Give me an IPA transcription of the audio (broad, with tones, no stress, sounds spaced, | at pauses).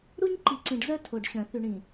ɾ u˦ ɲ ǃ i˨ ǀ ĩ˨ ɖ z œ˦ tʰ o˨ ɖ ɕ œ̃˨ θ y˨ ɳ ĩ˨